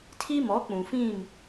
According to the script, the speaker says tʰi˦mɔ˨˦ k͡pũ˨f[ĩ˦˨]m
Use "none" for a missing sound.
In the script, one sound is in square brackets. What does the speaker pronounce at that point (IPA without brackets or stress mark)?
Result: ĩ˦˨